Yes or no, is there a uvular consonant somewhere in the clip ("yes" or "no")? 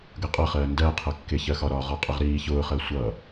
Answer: yes